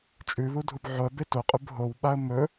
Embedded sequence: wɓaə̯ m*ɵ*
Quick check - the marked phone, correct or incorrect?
correct